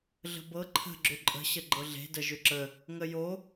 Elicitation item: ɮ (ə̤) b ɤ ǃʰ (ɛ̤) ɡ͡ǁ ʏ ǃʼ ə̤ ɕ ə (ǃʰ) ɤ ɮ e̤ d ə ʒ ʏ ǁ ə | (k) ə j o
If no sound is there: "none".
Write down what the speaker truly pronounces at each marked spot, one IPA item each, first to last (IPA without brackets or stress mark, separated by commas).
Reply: ə̤, ə̤, ɡ͡ǃ, ŋ